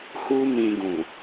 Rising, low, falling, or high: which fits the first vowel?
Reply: high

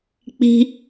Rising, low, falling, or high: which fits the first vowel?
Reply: high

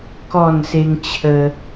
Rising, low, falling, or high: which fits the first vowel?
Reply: falling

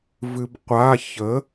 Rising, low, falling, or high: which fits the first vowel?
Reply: low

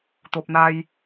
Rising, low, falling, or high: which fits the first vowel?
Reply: low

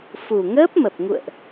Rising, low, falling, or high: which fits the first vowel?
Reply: low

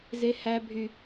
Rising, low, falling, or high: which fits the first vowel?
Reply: high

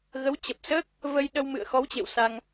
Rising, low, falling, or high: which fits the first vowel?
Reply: rising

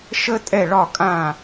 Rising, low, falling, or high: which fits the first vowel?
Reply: high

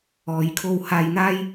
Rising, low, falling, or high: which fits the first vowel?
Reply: low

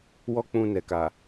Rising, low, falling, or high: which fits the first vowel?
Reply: high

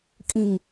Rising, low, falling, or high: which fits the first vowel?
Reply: low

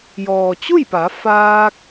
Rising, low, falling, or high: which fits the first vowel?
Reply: low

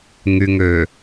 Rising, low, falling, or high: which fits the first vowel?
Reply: low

